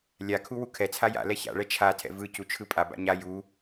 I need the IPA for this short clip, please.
lʲ a kʰ u w u kʰ ɛ t͡sʰ a j a̰ l ɛ ç a̰ ɭ ɛ t͡ʃʰ a tʰ ɛ̰ v ɯ c u t͡ʃʰ ɯ pʼ a b a̰ ɲ a j u

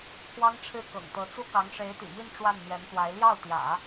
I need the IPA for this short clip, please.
pʰ w ɑ˥ ŋ ʈ͡ʂʰ ɻ̩˥˩ k ɤ̰˨˩ ŋ t̪ ɤ˧˥ t͡s u˥ k ɑ˧˥ ŋ ʂ e˧˥ ɪ̯ t̪ ḭ˨˩ m i˥˧ n ʈ͡ʂ w a˥˩ n n̪ ɥ ɛ˧˥ n t̪ w a˧˥ ɪ̯ l j ɑ˥˩ ʊ̯ t̪ j ä̰˨˩˦

